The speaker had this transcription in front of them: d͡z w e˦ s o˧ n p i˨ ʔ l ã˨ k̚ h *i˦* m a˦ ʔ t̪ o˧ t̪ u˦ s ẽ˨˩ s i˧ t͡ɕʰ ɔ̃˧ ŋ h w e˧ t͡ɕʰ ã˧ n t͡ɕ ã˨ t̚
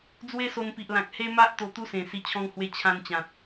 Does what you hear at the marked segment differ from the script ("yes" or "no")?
yes